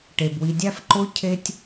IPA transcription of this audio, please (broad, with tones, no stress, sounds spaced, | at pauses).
ʈ e˩ b w i˨ dʲ æ˦ f ǃ o˦ cʰ e˥ tʲ